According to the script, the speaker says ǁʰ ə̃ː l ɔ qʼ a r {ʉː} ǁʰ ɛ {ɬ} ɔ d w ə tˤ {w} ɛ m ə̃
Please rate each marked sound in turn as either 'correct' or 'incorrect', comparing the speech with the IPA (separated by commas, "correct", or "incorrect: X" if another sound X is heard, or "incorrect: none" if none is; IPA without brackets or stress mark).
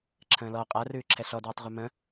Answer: correct, correct, incorrect: ʁʷ